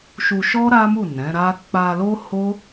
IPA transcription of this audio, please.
ʃu˧ʃɔ˦ ɾa˦mu˦˨ nɛ̃˨˦ɾa˦ k͡pa˧lo˦ ho˦

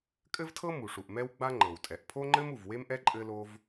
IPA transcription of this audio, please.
kʼɘ˥vtʰɤ˥ mu˩ʂu˩ʔ mɛ˥wɡ͡ba˥ ŋ͡ǃɤ˩wtʼɛ˩ʔpʰo˥ŋ͡ǃɘ˥m u˩v we˥mʔɛ˥ ǃʼɘ˥lo˥v

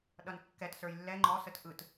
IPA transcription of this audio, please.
ɗʌnkːɛt sə˞jlːɛ ŋ͡ǃɔ sətʔɯt

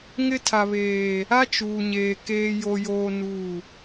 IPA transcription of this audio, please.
ŋɪ˦ tʰa˨βeː˨ | a˦t͡ʃuː˨ɲeː˨ keː˨jo˨joː˨ nu˦˨

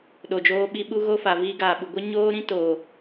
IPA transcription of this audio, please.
ɗo˨d͡ʒoː˧ɓi˧ ɓu˦ɣo˦ fa˨viː˧ɡaː˨ɓu˨ ɡʷə˦ ɲoː˦ɾĩ˦ toː˨

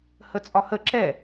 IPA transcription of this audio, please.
hət͡sʼɒhə ǁɛ

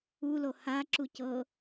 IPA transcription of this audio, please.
ulo haǁu cɤ

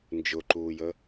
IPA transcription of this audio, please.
nd͡ʒʊǃuːjə

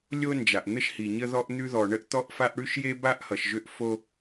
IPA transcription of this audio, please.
lʲo˥nd͡ʒa˩ʔn̪ə˥ʃhi˩ ɲə˥ðɔ˥ʔ n̪ʉ˥ðɔ˩ ɳə˥ʔt̪ɔ˥ʔfa˥ʔ ɽʉ˥ʃje˥ba˥ʔ hʌ˩ʃʒʏ˥ʔfo˥

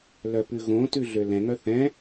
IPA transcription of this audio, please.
lœpʉɣõtʉ ɮølɛ̃ŋœ θɛ̃

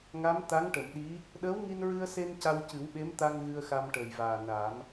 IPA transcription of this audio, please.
ŋa˧˥mt̪a˧˥ŋʈə˨˩˨mɗi˧˥ | ɗəː˧˥wŋi˧nɹɨ˧ə̯se˧n ca˧wcɨ˨˩˦wɓe˧˥m t̪a˧ŋ ɣɨ˧ə̯xa˧mʈəː˨˩jvaː˨˩ na˨˩˦m

